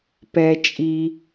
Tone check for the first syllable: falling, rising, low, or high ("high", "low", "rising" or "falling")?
low